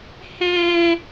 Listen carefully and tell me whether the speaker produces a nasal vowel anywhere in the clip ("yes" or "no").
yes